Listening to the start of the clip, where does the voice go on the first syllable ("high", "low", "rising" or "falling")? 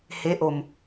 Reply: rising